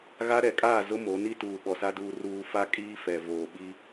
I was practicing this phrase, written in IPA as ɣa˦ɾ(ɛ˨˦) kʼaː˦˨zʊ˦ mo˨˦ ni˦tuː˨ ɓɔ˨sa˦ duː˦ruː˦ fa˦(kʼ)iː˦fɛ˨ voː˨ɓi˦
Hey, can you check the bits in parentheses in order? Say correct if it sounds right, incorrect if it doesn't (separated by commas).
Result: correct, correct